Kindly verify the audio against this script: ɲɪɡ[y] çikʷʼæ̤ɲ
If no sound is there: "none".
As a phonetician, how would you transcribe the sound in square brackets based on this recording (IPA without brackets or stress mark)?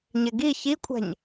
i